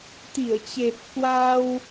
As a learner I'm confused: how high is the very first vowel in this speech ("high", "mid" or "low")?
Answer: high